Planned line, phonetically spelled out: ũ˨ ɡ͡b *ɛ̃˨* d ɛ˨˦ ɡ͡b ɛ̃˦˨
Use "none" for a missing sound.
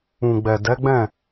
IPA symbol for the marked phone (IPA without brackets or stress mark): ɛ˨